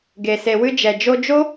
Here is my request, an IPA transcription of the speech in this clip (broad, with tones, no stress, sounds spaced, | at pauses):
ɡ e˨ s e˨ w ɨ˧ d͡ʒ ɛ˨ d͡ʒ o˧ d͡ʒ o˦